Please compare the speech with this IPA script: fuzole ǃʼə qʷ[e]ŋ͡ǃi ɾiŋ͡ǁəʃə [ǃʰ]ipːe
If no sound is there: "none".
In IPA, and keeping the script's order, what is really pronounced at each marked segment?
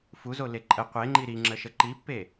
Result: e, ǃ

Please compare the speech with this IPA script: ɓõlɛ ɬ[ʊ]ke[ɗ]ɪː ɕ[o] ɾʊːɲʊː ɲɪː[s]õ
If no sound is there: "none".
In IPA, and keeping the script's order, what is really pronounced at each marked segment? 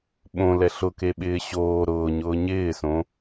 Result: ʊ, ɓ, oː, s

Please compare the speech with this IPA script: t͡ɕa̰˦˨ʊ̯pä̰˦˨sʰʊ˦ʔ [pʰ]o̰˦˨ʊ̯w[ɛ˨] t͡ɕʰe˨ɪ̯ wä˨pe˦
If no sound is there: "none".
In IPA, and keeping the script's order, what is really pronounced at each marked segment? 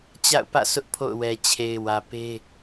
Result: pʰ, ɛ˨

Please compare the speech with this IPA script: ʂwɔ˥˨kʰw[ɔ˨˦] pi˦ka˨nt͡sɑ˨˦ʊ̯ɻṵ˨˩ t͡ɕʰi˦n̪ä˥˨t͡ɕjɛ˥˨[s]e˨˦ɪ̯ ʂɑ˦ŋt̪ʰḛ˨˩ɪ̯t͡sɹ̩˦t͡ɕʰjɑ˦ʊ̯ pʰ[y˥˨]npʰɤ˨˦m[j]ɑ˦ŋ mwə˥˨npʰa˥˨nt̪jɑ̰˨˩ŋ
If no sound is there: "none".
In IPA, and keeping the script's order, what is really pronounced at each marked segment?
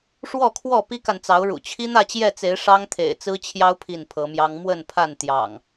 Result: ɔ˥˨, t͡s, i˥˨, j

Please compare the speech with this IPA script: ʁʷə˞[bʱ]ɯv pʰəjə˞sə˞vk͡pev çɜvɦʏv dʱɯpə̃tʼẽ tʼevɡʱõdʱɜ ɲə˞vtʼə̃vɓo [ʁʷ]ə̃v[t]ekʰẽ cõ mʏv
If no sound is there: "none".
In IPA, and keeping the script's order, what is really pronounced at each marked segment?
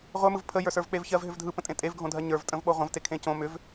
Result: m, ʁʷ, t

